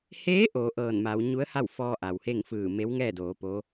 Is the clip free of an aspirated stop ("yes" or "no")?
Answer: yes